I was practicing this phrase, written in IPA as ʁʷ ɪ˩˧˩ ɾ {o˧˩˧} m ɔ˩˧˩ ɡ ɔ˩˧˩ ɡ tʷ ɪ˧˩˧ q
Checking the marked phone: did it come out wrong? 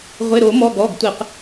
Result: no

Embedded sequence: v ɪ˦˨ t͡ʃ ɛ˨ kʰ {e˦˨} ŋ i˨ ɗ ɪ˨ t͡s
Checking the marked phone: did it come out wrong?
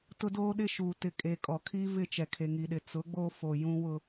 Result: yes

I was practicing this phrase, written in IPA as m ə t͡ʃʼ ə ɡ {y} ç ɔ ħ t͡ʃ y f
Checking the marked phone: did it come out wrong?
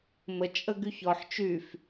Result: no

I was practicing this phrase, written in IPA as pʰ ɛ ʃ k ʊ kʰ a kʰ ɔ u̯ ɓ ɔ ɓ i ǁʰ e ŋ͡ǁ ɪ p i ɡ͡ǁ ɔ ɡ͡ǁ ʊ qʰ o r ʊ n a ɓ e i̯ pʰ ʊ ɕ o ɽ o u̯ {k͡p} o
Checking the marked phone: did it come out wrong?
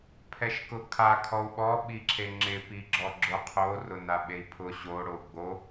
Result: yes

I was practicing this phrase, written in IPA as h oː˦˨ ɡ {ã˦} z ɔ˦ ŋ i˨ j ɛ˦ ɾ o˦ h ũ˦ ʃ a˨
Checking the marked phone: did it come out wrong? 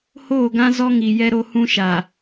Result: no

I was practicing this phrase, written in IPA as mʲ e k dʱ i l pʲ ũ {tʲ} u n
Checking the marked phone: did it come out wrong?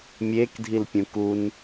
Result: yes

